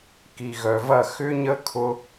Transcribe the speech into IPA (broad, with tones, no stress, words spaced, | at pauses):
ki˨ɣœ˨vɐ˦˨ xʏ˦ɲə˦ kʰʊ˦